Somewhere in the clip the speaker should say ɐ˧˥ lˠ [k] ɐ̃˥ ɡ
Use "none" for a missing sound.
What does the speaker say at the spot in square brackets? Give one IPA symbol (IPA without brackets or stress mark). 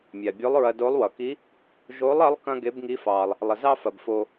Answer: k